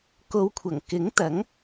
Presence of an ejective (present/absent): absent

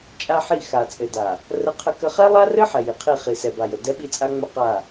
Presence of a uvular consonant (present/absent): present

